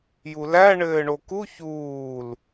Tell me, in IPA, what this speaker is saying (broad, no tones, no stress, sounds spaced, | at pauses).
j u l æ ɳ ɘː ɳ o k u ç uː l